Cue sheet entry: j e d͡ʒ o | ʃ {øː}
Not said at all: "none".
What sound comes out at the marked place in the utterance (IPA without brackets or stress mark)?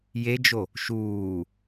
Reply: uː